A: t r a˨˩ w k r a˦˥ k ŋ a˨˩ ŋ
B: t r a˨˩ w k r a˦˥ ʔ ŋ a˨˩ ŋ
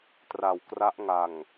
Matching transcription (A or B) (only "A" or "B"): B